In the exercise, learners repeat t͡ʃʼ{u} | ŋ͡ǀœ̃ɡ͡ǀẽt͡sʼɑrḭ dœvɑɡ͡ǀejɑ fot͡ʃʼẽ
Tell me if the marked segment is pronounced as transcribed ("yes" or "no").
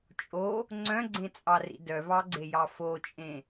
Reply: no